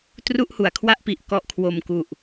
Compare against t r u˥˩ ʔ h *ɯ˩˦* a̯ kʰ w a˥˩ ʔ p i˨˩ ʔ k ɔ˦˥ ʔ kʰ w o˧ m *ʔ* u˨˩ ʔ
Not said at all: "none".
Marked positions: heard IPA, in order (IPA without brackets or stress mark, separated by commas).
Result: u˩˦, k